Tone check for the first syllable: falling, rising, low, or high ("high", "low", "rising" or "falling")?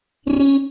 high